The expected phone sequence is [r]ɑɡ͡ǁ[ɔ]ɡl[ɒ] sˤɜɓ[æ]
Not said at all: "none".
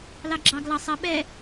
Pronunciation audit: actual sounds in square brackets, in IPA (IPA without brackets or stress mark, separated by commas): l, ɑ, ɑ, ɛ